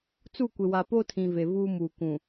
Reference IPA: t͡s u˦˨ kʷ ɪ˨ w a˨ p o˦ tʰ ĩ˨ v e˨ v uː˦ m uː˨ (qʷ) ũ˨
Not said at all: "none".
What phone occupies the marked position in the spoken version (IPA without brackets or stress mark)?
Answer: kʷ